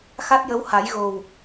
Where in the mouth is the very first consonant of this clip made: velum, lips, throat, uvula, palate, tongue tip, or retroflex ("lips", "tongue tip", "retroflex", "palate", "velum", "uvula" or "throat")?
velum